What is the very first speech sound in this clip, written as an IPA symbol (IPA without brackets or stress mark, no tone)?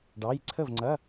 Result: ɖ